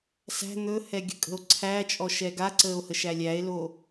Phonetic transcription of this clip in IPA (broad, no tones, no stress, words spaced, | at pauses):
sæ̤ n̪ɵhɛɡʲə̤kʼə̤o̯ ǀʰæt͡ʃʼɔʃɛ ɡaǀəːo̯həʃæ lʲæe̯lo